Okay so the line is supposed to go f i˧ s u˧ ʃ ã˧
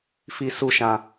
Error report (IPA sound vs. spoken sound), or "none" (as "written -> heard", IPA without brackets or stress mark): none